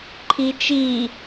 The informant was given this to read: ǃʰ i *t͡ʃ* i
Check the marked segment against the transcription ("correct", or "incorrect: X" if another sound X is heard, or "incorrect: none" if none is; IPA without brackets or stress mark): correct